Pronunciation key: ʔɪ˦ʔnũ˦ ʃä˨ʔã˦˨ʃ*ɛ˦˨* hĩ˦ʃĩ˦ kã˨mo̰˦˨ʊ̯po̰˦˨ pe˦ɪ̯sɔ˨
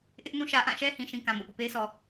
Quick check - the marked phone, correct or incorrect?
incorrect